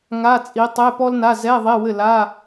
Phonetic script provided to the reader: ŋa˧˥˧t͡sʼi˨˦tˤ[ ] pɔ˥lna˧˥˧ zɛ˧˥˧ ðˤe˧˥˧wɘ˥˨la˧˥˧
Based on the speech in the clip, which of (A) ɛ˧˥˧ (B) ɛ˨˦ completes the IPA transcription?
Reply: A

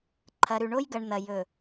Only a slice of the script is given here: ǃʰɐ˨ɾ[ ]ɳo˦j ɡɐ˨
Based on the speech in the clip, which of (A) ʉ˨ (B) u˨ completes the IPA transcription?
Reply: A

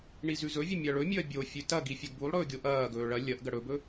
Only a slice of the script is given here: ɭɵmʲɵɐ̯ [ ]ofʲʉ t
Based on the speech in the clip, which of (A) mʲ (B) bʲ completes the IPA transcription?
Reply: B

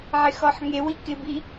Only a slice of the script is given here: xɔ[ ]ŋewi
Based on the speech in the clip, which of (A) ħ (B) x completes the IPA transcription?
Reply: A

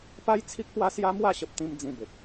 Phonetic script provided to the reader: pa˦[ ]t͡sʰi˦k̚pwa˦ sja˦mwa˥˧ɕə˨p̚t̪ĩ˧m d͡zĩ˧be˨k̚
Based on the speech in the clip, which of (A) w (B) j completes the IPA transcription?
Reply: B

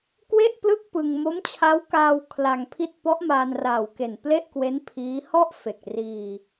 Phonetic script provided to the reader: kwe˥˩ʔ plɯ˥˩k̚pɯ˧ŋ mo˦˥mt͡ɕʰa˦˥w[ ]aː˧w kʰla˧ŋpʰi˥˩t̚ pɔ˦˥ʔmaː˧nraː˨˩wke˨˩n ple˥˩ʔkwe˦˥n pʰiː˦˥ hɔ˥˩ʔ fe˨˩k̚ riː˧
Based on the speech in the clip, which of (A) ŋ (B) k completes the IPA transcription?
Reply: B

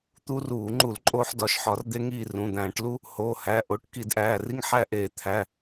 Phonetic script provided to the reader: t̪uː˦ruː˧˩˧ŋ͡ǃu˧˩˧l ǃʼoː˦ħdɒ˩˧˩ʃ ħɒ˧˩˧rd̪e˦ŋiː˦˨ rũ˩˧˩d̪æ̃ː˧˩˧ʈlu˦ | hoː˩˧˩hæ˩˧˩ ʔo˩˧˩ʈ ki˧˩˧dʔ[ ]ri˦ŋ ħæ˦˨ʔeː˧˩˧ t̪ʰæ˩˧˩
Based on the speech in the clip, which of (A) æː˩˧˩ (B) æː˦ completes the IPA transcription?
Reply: A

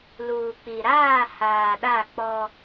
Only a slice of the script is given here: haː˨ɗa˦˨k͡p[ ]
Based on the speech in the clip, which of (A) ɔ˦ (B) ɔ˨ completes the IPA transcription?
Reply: A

